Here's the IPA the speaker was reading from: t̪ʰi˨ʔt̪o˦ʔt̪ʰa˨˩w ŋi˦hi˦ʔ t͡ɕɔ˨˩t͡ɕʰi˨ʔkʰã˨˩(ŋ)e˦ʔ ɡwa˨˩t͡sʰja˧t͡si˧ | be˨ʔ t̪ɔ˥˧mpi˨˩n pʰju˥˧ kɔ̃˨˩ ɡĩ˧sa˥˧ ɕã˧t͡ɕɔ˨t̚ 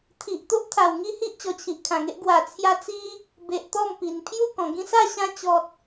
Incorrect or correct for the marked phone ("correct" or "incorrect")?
correct